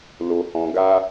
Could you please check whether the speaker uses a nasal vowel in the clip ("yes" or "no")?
yes